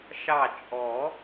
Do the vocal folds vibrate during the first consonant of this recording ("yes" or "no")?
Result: no